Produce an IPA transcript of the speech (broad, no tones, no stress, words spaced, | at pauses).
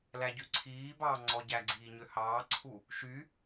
læɟyǀʰiːbɑː ŋ͡ǀɔɟæɡ͡ǀiː ɲøhɑːǀʰu | ʃy